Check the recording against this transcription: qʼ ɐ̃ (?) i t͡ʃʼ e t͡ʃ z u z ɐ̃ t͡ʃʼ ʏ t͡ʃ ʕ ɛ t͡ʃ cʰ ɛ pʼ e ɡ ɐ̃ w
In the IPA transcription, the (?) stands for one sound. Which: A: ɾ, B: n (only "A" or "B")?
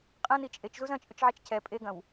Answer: B